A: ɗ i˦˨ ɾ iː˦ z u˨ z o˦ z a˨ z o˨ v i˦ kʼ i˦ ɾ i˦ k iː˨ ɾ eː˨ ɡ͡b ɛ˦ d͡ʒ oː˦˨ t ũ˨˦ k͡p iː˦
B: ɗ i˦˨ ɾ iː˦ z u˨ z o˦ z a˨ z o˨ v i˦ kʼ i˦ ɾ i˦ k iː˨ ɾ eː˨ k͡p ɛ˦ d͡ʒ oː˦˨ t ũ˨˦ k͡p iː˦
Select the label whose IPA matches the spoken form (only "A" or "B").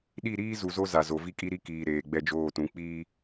A